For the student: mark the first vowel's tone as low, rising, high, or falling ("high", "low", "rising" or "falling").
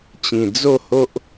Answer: low